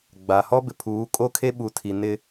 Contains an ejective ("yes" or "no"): yes